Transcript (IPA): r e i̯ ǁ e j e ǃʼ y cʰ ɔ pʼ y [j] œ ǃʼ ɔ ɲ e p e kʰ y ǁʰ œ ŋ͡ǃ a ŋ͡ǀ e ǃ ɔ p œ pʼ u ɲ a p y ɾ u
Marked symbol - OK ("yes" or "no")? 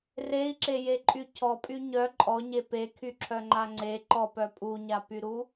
no